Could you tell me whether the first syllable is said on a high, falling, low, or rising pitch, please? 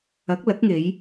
rising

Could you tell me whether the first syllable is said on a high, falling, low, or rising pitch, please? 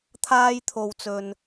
high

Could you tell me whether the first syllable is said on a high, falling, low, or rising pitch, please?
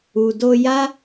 low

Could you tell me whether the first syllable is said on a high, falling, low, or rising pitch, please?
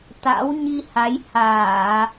rising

